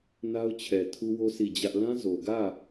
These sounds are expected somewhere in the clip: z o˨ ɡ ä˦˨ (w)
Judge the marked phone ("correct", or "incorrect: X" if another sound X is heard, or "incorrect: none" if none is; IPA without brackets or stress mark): incorrect: none